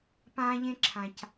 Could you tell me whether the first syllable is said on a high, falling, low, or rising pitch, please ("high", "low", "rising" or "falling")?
high